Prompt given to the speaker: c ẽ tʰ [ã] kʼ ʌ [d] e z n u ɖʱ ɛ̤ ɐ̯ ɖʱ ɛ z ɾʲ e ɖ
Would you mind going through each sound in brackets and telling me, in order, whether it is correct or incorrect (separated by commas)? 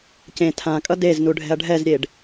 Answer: correct, correct